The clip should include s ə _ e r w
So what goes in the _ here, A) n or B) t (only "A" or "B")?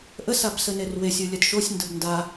A